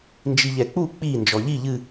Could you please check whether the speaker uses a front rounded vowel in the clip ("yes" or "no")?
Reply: no